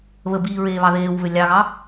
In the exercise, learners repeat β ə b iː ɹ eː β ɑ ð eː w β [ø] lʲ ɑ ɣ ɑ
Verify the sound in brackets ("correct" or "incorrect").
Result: correct